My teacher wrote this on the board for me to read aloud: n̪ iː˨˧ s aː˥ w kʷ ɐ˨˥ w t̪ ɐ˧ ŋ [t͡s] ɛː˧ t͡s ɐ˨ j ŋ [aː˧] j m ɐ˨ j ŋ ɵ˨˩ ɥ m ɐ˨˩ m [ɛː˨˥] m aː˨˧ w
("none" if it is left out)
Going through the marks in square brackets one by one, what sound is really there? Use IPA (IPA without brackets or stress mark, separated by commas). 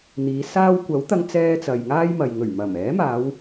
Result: t͡s, aː˥, ɛː˨˥